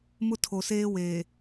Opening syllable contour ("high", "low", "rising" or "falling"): high